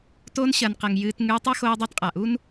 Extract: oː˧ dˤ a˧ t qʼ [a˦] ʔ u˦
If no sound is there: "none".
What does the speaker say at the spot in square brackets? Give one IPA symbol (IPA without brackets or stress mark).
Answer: a˨